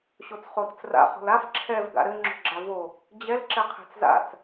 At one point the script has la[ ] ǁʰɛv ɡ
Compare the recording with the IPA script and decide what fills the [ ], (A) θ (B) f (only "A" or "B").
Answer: B